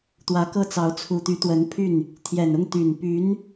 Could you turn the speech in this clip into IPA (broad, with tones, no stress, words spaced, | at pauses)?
t̪wä˧˥kɤ˥˩t͡sɑ˧˥ʊ̯ t͡sʰu˨˩t̪y˧˥t̪wə˧˥npʰy˥˩n | t̪ʰjɛ˨˩nʊ˥˩ŋ t̪y˨˩npy˧˥n